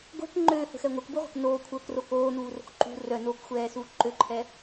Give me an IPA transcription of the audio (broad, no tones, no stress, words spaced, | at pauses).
ɡʷɛ̤k ŋ͡ǃøːhə̤xɛ ŋʷœkbuʁʷe̤k noːkʷʰœːkro koːnuːro̤k ǃṳ rœnoːkxʷɛːsuː ǃøǃʰɛ